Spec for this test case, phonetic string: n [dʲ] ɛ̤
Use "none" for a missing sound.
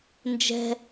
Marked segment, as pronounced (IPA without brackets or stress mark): d͡ʒ